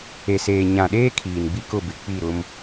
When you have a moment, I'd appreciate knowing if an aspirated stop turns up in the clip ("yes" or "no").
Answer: yes